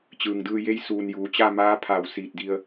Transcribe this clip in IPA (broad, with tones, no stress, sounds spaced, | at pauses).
t͡ɕ ɯː˩ ŋ d ɯː˧ j e˧˥ j s uː˩ n j uː˩˧ t͡ɕ a˥˨ m aː˧˥ pʰ a˧˩ w s iː˧˩ t̚ d i˧ ə̯